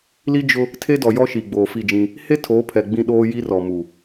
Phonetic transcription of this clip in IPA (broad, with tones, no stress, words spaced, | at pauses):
li˦ d͡ʒʊ˦ | tʰe˦dɔ˨jɔ˦ʃi˨ ɡ͡boː˨fi˦˨d͡ʒĩ˦ | he˦ tʰoː˨˦pʰɛ˨ ɡ͡bĩ˦ɗoː˦ ji˦rɔ˨mu˨